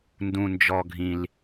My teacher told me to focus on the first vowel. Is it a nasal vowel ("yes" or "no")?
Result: yes